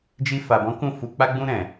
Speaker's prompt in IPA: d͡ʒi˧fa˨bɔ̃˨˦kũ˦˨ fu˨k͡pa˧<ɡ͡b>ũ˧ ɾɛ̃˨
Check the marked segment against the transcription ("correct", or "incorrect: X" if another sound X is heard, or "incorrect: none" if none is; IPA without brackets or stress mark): correct